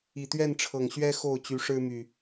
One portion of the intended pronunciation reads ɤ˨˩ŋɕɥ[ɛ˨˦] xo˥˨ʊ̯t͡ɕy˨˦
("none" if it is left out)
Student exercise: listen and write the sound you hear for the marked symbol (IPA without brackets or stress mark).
ɛ˦